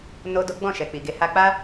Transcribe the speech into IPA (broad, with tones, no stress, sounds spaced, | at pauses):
n o˦ d o˦ ɡ͡b ɔ̃˦˨ ʃ ɛ˨ k͡p i˨ ɡ e˨˦ h a˧ k͡p a˦